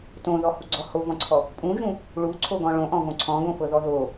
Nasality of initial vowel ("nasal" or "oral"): nasal